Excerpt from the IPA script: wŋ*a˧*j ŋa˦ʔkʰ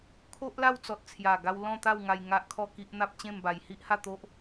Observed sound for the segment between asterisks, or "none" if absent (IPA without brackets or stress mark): a˧